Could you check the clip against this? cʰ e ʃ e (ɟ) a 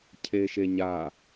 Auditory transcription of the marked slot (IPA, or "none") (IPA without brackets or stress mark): ɲ